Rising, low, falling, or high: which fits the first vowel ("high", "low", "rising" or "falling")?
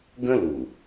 high